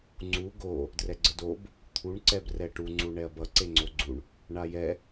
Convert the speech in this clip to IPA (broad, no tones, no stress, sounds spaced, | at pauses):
ŋ͡ǀ u ɡ o | d r ɛ ɡ͡ǀ ə d o b | t̪ʰ u ɳ ǀ ɛ b r ɛ ʈ u ŋ͡ǀ u ɳ ɛ ɐ̯ b ʌ ǀ e ŋ͡ǀ o ɡ͡ǀ u ɳ | ɳ a j ɛ